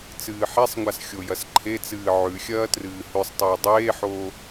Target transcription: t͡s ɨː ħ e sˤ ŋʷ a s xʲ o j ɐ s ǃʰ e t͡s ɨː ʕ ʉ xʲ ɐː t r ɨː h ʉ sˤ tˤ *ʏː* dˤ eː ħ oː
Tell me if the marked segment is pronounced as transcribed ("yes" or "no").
no